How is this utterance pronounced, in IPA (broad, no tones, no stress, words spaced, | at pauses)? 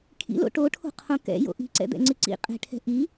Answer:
kʰḭlo̰ ʈoʈʰo̤qʰõ kɛ̰jo̰ ʔi̤ǀɛ̰d̪ɛ̰ŋ͡ǀɨ ǀḭ qʼɛ̤ʈʰɛ̤ ʔi